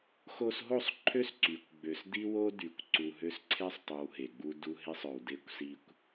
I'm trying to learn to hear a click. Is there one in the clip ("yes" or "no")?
yes